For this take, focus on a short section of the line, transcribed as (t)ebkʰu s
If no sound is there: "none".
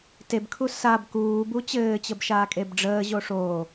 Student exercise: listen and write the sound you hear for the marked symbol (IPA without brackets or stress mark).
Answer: t